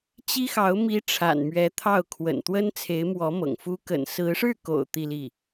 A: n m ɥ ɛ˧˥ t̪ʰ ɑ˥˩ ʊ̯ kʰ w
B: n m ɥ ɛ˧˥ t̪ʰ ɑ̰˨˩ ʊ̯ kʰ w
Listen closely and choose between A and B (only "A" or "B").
A